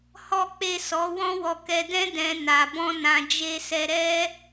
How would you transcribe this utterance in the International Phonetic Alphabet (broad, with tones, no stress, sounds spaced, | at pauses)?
h ɔ˦ k͡p e˦˨ s ɔ˨˦ w ɔ̃˦ w ɔ˧ k ɛ˧ d ɛ̃˦ d ɛ̃˧ n a˨ b ɔ̃˧ n ã˨ d͡ʒ e˧ s ɛ˧ ɾ ɛ˦